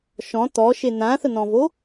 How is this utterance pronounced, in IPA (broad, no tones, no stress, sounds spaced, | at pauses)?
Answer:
ʃ ɔ̃ t̪ ɔ ʃ e n̪ ã θ ə n̪ ɔ̃ v o